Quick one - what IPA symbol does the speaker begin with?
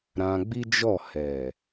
ɾ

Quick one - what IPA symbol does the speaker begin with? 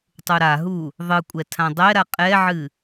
tˤ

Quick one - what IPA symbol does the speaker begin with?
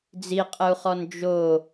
d͡z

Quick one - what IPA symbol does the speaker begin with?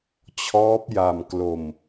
t͡ɕʰ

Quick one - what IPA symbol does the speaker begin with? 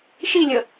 ʃ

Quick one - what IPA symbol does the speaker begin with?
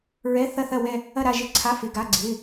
ɹ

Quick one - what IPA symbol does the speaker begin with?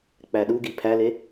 k͡p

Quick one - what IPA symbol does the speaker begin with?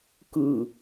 k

